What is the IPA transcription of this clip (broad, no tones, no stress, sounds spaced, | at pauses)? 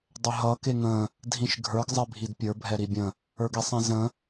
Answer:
dˤ ʏ ɦ ʌ k e ŋ ə̃ | dʱ ĩ ʃ ɡʱ ə˞ ɡ zˤ e bʱ i d pʲ ə˞ bʱ ɛ ɾ i bʲ ə̃ | ə˞ ɡ i sˤ ĩ z ə̃